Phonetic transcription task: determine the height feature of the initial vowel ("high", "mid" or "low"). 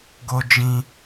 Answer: mid